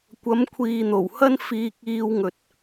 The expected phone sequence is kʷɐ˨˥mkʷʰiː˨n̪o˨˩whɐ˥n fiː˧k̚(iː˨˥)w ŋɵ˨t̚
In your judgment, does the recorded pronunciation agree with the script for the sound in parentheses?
no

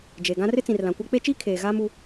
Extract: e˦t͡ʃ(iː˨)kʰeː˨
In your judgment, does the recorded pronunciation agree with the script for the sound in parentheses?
no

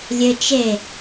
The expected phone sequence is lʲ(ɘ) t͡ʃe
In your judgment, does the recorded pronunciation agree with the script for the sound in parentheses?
yes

